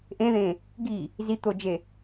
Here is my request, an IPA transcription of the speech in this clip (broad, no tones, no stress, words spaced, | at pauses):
ʔẽðẽ | ɡi | zit̪od͡ʒe